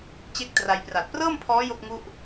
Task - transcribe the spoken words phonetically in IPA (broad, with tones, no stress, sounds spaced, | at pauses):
t͡ɕ e˥˩ k̚ t r a˧ j p r a˨˩ t̚ p r ɤː˥˩ m pʰ ɔː˦˥ j o˥˩ k̚ ŋ u˥˩ ʔ